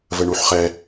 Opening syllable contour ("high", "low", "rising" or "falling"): low